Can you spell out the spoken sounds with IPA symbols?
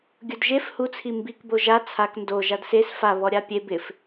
ɡʲ ʊ d ʒ e f h u t͡sʰ i m b i k b o ʒ a t͡sʰ a k n d o ʒ a d s e s f a β ɔ ɾʲ a pʲ e b ɪ f

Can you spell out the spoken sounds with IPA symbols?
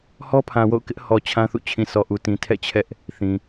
h ɔ˦ pʰ ã˨ w o̰˦˨ ʊ̯ k ɪ˦ ʔ h ɔ˨ t͡ɕʰ ã˦ θ ṵ˦˨ t͡ɕʰ ĩ˨ s ɔ˨ ʔ u˨ t ĩ˨ tʰ ɛ̰˦˨ t͡ɕʰ ɛ˦ ʔ | θ ĩ˨

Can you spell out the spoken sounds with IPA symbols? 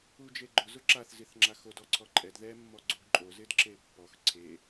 u d͡ʒ e ɡ͡ǃ ʊ z ʊ ǁ a θ z i θ ŋ͡ǁ a x o d ɔ ǀʰ ɔ ǃʼ ɛ d ð ɛ mː ɔ ɡ͡ǀ u ɡ ǃʼ o z ɪ d ǁ e pː ɔ x ǀʰ e

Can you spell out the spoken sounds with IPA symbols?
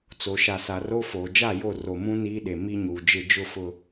t͡s o˨ ʃ a˨ s a˨ r o˦ f oː˨ d͡ʒ a˦˨ j o˦˨ r o˨ m ũ˦ n iː˦ ɗ e˨ m i˦ ɲ uː˨ d͡ʒ ɪ˦˨ d͡ʒ ʊ˦˨ f ʊ˦

